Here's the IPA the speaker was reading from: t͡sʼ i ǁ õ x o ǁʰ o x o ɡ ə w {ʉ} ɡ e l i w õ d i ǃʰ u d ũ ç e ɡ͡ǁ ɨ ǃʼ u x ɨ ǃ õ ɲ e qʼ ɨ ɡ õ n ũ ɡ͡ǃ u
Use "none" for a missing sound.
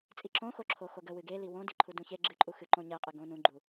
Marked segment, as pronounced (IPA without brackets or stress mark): ɨ